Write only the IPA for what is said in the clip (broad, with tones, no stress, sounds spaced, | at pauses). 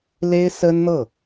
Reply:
l e˥ ɪ̯ s ə˥ n n̪ ɤ˥˩